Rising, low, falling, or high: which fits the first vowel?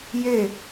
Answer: falling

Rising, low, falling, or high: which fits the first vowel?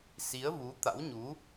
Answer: rising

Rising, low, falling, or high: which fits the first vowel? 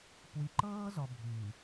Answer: low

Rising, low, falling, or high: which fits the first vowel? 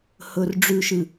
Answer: low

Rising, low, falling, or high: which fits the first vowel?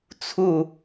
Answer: falling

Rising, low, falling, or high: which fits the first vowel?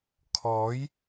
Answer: rising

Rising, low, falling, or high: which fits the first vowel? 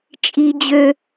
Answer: high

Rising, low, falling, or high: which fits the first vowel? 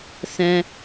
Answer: high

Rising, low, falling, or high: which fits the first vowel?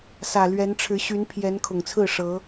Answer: low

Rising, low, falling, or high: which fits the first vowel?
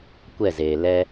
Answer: falling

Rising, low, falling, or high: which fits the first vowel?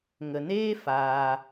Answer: low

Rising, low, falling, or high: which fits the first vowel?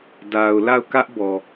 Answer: low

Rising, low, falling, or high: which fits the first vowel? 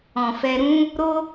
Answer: low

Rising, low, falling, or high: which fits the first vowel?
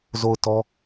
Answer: falling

